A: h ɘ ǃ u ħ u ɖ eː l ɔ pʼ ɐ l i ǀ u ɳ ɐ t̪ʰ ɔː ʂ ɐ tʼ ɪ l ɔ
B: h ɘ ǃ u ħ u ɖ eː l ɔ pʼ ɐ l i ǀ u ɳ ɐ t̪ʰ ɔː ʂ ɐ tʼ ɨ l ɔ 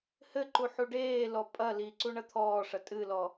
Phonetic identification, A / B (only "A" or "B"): B